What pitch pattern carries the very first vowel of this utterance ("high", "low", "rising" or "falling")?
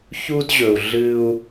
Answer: high